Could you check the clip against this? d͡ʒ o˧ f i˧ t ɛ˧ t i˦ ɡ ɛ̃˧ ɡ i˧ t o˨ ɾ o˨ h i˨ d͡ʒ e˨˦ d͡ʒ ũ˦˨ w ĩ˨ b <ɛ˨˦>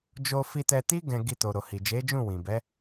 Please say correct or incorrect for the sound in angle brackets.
correct